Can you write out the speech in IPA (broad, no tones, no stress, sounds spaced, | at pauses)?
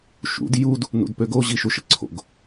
ʃ ṵ d j u d | n ṵ d p ø ɡ o ʑ i ʃ u ʃ ə ǀʰ o̰ ɡ